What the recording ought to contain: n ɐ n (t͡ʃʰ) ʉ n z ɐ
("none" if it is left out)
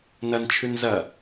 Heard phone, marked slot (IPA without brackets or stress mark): t͡ʃʰ